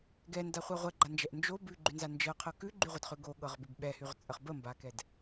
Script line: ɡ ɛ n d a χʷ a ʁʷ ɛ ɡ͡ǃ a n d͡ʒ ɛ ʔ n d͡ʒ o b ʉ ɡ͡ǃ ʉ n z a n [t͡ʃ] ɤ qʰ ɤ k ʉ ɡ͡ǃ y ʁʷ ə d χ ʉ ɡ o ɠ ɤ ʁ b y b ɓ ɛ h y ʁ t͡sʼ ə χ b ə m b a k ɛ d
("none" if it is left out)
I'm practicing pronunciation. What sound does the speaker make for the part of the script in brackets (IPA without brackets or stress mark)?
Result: d͡ʒ